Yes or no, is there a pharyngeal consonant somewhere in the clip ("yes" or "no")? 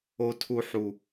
yes